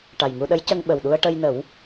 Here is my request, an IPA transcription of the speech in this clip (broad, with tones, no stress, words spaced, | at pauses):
ʈa˨˩jŋu˧ɗə˧˥jcə˧ŋ ɓə˨˩wɗu˧ə̯ ʈə˧jnə˨˩˦w